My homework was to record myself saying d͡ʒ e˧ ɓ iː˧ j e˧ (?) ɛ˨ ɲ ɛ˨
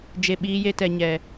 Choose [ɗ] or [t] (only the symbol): t